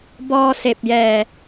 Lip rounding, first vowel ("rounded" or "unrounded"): rounded